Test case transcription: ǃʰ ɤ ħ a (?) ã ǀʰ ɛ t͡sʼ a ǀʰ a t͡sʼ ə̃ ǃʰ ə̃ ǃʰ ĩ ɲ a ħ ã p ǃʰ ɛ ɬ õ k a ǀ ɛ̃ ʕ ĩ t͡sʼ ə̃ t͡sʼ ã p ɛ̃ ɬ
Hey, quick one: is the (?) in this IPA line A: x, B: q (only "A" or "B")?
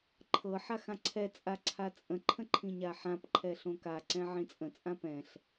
A